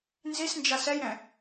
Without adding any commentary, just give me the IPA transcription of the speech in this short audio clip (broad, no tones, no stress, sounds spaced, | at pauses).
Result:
n z i s n d͡ʒ a s ɛ j ɾ ɛ̃